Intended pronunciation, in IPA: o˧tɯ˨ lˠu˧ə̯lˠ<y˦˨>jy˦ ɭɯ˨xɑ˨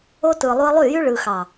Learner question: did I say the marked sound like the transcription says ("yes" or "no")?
yes